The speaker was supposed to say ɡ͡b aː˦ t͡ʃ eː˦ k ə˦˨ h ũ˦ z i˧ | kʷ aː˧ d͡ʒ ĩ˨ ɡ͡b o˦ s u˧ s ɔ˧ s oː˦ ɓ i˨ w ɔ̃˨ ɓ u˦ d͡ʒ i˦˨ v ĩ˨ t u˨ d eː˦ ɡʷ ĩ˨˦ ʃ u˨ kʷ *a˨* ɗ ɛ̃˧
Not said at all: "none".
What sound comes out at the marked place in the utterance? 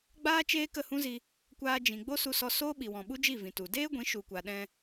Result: a˨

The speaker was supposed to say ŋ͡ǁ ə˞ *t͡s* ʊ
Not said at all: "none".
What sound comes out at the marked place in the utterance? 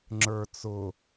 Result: t͡s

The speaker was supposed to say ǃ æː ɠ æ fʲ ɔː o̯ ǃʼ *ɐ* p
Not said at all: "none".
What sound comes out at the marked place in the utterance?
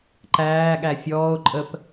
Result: ə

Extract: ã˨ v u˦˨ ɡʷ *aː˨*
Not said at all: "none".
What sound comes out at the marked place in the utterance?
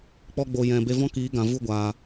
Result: aː˨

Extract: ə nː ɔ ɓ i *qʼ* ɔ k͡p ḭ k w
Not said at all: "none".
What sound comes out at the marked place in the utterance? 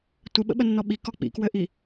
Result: k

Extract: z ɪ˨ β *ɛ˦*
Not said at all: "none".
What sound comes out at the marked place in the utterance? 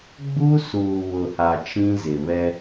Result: ɛ˦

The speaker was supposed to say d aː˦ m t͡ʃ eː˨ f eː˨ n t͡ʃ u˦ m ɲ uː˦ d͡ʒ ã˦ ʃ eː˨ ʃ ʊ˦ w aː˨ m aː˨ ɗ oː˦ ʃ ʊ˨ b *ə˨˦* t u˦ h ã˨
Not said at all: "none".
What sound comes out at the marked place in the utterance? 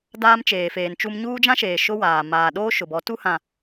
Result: ɔ˨˦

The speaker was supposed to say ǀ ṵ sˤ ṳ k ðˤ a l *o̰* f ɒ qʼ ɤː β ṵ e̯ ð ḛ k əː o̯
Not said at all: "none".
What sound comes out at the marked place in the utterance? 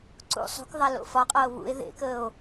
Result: o̰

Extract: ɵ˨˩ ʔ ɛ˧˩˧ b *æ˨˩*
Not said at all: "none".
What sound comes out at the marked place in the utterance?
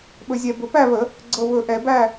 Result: æ˥˨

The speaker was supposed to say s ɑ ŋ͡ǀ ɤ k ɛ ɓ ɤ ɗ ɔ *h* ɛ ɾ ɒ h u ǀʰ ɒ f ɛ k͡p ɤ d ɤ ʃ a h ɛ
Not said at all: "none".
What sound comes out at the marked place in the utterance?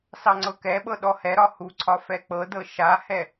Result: h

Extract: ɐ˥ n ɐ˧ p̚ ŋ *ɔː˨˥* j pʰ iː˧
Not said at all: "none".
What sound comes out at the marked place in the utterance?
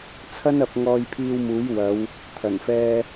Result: ɔː˧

